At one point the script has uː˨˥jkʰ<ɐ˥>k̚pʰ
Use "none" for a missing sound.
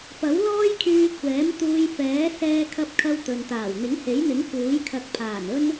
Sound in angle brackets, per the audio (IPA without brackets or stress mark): ɐ˧